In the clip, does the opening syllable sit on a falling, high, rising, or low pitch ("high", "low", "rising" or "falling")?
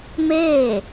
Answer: falling